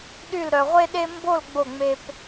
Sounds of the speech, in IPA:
ɗy˥˧lɾœ˧ʁʷe˥ɗe˥ mbo˥˧l ɡ͡bo˥˧ ŋ͡me˥p

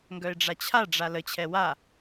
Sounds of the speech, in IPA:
ŋɡœɪ̯ɖ͡ʐat͡ɕʰaɖ͡ʐa lət͡ɕʰɛ wa

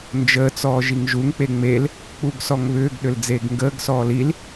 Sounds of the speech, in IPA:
nd͡ʒəːt͡sɔː ʒiŋʒuŋk͡pe ŋ͡mel | k͡puɡsɔŋβʏːɡɗʏl d͡zeːɡŋɡəːɡsɔːl il

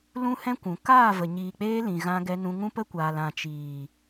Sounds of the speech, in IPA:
lũ˦hɛ̃˦kʷũ˨ kaː˦˨və˨ ɲiː˨k͡peː˧ lĩ˨ ɣã˧ɡɛ˧nũ˧ ŋũ˦pə˦kʷaː˨l ã˨t͡ʃiː˨

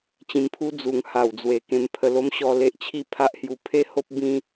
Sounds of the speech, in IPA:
t͡ɕĩ˧mpʰu˦ d͡zu˧ŋ ha˨˩wd͡zwe˨˩ kẽ˧mpʰə˧lo˦mɕɔ˧ le˦ʔt͡ɕʰi˥˧ pʰa˦ʔhju˧ pʰe˦ho˦p̚ bĩ˦

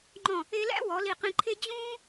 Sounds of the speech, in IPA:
ŋ͡ǃɔ̃˧˩ | e˧læ̰˥ wɔ˩˧li˧˩qĩ˧ǃʰe˥ d͡ʑũː˥

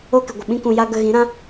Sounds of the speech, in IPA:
o˦kɨ˨ɡʷə˨ ɓĩ˦kũ˧ja˦ ɡə˧ɣĩ˨˦ɾã˦

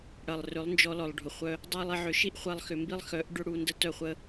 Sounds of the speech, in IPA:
ɽɐ˨lˠrʏ˨˦lˠnd͡ʒɔ˧lɔ˨lˠ ɖʱʊ˨χʷœ˧ | dˤa˦lˠ e˧ʕʏ˧ʃi˦ʔ χʷa˦lˠxʏ˧mbi˦lˠ xœ˨˦ʔ ɖʏ˦ɽu˧ ndə˦tœ˦˨χʷə˦

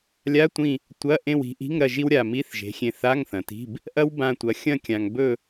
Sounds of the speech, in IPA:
lʲa˧˥˧tʷĩ˦˨ | tʷɐ˧˥˧ ʔẽ˦˨wi̤˨˥ʔi̤˧˥˧ŋɾɐ˦˨ ʒi˥wɾʲa˦˨ mi˧˥˧θ ʒe̤˨˥xʲẽ˦˨ θa˧˥˧ŋθɐ̃˨ti̤˧˥˧b | ʔɐ˥w bã˦˨tʷɐ˨˥ xʲɐ̃˦˨kʲã˨ŋbɵ˦˨

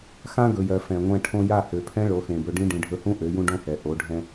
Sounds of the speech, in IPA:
xã˦ɡɵ˨jɜ˨ fɛ̃˨ŋʷɛ̃˧ ʈʰõ˧ja˦˨ hø˨pʰɛ̃˦ ɭo˨˦xẽ˨bɵ˧ɖĩ˦ ɖĩ˨ɖʱɵ˧hũ˦ ʔø˨˦jũ˦ɖõ˦hɛ˨ ʔo˨˦ɖʱɛ̃˦

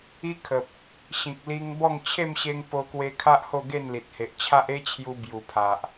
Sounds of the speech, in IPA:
i˦kʰə˨p̚ | ɕĩ˨k̚li˧ŋbɔ˥˧ŋ t͡ɕʰe˥˧mɕe˧ŋ po˧kwe˧kʰa˦ʔ ho˥˧ɡe˥˧nli˨t̚he˨ʔ t͡ɕʰa˦ʔe˦t͡ɕʰju˧ bju˨˩pʰa˨ʔ

